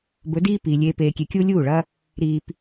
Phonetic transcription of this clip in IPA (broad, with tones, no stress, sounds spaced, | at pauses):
b ɵ˨˦ d iː˦ p iː˨ lʲ eː˨ p eː˨ kʲ e˨ kʲ uː˧ lʲ uː˦˨ ɭ ɐ˦ | ɾ iː˧ p